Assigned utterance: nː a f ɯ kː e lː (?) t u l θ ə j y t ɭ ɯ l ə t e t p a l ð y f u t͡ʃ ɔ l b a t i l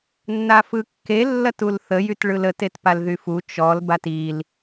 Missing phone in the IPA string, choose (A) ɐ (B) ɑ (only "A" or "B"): A